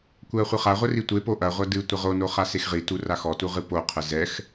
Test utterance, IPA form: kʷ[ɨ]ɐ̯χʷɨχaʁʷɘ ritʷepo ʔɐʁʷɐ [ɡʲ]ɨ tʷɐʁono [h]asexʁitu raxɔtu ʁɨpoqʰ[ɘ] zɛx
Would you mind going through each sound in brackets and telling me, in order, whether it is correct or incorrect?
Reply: incorrect, incorrect, incorrect, correct

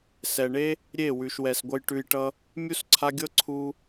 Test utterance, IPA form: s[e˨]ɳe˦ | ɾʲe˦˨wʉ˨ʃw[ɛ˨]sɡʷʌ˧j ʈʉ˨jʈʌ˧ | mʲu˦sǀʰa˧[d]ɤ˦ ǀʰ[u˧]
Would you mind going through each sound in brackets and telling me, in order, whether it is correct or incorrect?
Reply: incorrect, correct, incorrect, correct

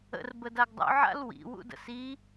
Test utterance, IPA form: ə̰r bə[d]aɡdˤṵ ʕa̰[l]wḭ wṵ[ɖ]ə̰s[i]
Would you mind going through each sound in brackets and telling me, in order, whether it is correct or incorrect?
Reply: correct, correct, incorrect, correct

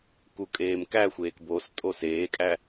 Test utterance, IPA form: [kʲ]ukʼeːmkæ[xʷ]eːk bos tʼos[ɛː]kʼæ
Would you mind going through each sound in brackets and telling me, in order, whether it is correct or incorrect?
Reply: incorrect, correct, incorrect

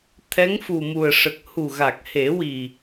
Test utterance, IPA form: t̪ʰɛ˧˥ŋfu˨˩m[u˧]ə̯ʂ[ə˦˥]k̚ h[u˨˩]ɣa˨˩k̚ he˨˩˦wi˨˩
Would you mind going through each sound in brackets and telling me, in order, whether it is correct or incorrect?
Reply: incorrect, incorrect, correct

